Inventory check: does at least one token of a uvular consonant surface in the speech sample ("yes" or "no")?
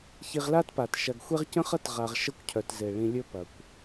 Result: yes